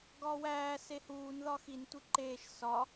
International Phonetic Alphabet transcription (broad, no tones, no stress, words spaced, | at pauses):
ɡɒːwæː sehuːn ðɒxin tʷiǃeːʃ sɒ